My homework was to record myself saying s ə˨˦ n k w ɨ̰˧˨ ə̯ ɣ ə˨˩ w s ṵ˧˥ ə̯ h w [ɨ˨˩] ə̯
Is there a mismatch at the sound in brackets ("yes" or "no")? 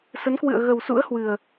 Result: no